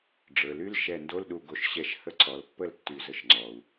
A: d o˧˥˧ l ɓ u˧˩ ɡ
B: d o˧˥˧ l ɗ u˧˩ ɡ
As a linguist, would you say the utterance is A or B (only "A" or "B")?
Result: B